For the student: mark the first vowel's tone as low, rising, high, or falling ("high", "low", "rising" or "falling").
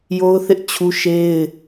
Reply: high